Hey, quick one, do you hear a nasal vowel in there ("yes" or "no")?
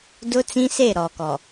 yes